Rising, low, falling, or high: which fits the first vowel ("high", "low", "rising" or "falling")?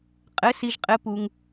rising